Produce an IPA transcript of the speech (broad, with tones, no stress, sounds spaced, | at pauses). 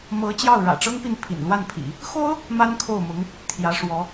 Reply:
m ɤ˧˥ t͡ɕ j ɑ˥˩ ʊ̯ ɻ ä̰˨˩ ʈ͡ʂ ɤ˥ ŋ p i˥˩ n pʰ ḭ˨˩ n l w a˥˩ n pʰ ḭ˨˩˦ | x o˥ ʊ̯ | m a˥ n kʰ o˥˩ ʊ̯ m ʊ˧˥ ŋ | t̪ʰ j ä˧˥ ʂ w ɔ˧˥